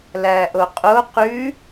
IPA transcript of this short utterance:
l æ ʔ o qʼ o q ʉ

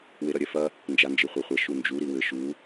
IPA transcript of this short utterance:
w e ɾ ɐ ɾʲ ɛ f ɐ | n d͡ʒ a n d͡ʒ ɨ χʷ a χʷ ɐ ʃ u n d͡ʒ u ɾ i w ɘ ʃ u

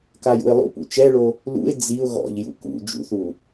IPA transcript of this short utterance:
k a j ṵ ɪ̯ lˠ ṵ p ṵ t͡ʃ ɛ ɭ o | l ṵ ɪ̯ d͡z i ʊ̯ ɣ ɔ̰ ʎ j ṵ k ṵ d͡ʒ ṵ θ u

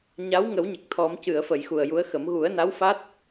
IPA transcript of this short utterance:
ɲ a˧˥ w ŋ ə˨˩˦ w ɲ ə˨˩ k̚ t̪ʰ ɔ˨˩˦ m c ɨ˨˩˨ ə̯ f ə˨˩˨ j x u˨˩ ə̯ j u˧˥ ə̯ x ə˨˩˦ m ɣ u˨˩˦ ə̯ n a˧˥ w f a˦˥ t̚

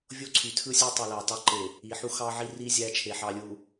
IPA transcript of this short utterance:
vʲ o˦ ǀʰ y˨ tʰ ɯ˦ sʲ e˦ tˤ y˨ l ɑ˨ t ɑ˦ ǃ e˨ | i˨ ħ u˦ x ɑ˦ ʕ i˦ r i˦ zʲ æ˦ t͡ʃʰ e˨ ħ ɑ˨ lʲ u˨

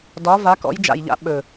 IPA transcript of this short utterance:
d ɒ˨˥ v a˨˥ k ɔ̰˨˥ j d͡ʒ a̰˨˩ j ʎ a̰˨˥ ɓ ɵ˨˩

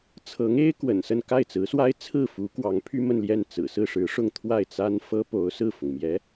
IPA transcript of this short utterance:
t͡sʰ ɤ˧˥ ŋ e˥ ɪ̯ k w ə̰˨˩ n s ə˥˧ n k a˥˩ ɪ̯ t͡s ɹ̩˧˥ s w a˥ ɪ̯ t͡sʰ ɹ̩˥˩ f u˧˥ k w ɑ˧˥ ŋ pʰ y˥ m ə˥˧ n l j ɛ˥˩ n t͡s ɹ̩˨˩ s ɹ̩˥˩ ʂ ɻ̩˧˥ ʂ ʊ˥˧ ŋ t̪ʰ w a˥˩ ɪ̯ t͡s a˥ n f ɤ˥ p o˧˥ ʊ̯ s ɹ̩˥˩ f ʊ˩ ŋ m j ɛ˧˥

